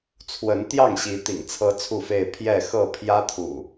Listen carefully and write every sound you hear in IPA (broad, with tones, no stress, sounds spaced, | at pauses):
t͡sʰ w ə˨˦ n t̪ j ɑ˥˨ ŋ ɕ i˨˦ t̪ ḭ˨˩ ŋ t͡sʰ ɤ˦ t͡sʰ u˥˨ f e˥˨ ɪ̯ pʰ j ɛ˥˨ x ɤ˥˨ pʰ j ä˦ t̪ʰ ṵ˨˩